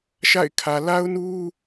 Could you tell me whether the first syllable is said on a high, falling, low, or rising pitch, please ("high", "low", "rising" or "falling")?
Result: falling